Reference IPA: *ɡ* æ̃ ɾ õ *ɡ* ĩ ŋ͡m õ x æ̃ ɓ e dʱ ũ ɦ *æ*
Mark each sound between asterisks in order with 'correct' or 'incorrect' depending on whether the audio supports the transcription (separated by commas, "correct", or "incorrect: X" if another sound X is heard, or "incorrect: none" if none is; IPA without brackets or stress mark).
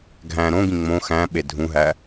incorrect: ɡʱ, correct, correct